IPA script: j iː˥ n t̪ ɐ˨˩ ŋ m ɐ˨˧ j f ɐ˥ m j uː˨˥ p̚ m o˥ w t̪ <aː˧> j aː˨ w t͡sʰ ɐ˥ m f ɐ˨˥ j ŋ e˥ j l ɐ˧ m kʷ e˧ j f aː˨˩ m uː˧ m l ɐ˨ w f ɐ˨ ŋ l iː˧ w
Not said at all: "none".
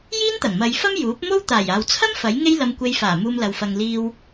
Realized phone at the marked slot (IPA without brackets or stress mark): aː˨˩